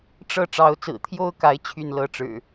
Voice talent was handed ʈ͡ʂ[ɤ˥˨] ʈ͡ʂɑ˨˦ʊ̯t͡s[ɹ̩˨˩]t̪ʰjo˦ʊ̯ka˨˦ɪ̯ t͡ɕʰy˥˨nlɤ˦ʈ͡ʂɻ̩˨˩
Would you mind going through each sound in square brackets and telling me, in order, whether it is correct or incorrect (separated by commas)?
correct, correct